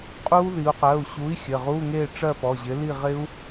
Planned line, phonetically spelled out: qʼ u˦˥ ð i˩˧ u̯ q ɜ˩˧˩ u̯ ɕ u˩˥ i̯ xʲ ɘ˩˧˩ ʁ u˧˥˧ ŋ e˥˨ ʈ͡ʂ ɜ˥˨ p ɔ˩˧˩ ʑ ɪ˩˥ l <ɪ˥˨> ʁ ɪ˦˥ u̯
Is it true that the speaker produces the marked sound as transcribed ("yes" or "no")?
no